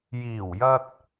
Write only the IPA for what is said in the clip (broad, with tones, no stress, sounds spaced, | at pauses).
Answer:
j iː˨˩ w j ɐ˧ t̚